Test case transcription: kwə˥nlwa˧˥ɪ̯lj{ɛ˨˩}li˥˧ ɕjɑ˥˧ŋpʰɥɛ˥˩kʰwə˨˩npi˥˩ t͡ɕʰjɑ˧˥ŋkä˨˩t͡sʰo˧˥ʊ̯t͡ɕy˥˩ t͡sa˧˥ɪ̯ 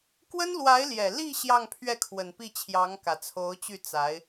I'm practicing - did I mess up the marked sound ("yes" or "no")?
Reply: no